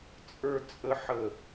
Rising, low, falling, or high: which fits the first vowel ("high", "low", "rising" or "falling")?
high